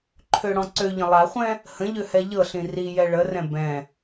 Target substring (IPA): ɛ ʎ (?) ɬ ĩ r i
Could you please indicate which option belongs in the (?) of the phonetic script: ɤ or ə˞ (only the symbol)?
ɤ